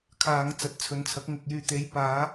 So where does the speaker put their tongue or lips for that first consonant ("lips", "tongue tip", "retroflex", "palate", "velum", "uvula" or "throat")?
velum